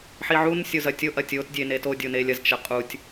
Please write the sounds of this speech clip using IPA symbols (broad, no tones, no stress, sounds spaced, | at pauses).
ħ i ʕ u n sʲ o z ɐ tʲ o ʔ ɐ tʲ o t dʲ e n e t o dʲ o n e lʲ ɐ z t͡ʃ ɐ qʼ u tʲ